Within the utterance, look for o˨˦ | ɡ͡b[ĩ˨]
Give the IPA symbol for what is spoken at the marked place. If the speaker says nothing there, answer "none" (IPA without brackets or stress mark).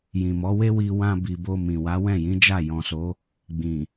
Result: ĩ˨